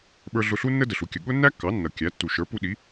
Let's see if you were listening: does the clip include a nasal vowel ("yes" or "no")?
no